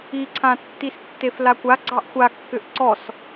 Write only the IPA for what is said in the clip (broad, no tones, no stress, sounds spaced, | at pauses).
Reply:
i ǀʰ ã tː i s tː e f l a kʷ a ɡ͡ǀ ɑ ʔ xʷ a kː ʏ ʔ ǀ ɔ s